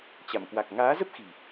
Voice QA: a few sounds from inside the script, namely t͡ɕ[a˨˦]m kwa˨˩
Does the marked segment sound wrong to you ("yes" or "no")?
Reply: yes